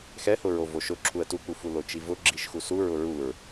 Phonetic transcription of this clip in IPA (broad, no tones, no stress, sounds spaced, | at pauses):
x ɛ h ʊ ɹ o v o ʃ ʊ ǁʰ u ə̯ t u k͡p u f u l o t͡ʃ i v ʊ ɡ͡ǁ i ʃ x u s u ɹ ʊ ɹ u ɹ